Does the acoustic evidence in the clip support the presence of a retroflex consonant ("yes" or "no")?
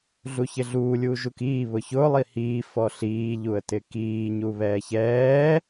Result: no